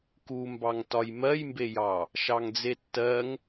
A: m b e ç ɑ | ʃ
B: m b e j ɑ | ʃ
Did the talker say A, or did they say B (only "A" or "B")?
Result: B